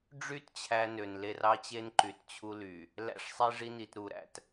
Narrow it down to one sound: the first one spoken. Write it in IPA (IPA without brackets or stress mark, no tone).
ɖ͡ʐ